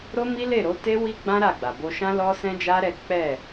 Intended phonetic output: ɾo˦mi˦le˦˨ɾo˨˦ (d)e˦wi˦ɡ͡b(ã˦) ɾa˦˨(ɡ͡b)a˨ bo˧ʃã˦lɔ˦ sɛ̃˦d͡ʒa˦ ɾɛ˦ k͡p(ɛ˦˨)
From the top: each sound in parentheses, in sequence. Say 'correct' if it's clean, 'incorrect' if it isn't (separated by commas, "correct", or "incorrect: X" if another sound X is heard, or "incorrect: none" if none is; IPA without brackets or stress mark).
incorrect: t, correct, correct, correct